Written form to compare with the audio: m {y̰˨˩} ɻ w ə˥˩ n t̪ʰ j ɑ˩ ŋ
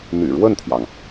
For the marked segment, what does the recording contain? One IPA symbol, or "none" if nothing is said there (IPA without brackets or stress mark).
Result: y̰˨˩